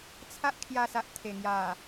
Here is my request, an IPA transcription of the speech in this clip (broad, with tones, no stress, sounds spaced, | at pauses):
t͡sʰ a˦ ʔ kʰ j a˧ s a˨ ʔ t̪ʰ e˨˩ ŋ j a˨˩